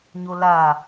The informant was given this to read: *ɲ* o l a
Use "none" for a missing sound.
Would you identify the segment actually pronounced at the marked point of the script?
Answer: ɲ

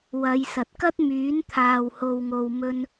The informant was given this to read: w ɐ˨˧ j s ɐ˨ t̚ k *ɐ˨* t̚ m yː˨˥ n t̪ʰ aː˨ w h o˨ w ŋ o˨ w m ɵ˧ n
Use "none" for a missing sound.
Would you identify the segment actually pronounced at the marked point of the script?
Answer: ɐ˥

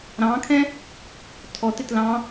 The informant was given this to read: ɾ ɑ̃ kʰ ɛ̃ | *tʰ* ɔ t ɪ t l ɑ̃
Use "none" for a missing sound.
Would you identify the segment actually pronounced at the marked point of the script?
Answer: tʰ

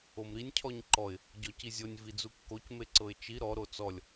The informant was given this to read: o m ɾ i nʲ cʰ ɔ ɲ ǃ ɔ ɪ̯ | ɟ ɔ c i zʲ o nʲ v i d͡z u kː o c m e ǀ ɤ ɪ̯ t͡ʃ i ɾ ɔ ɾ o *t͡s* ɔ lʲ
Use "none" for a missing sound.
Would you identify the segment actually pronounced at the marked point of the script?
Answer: t͡s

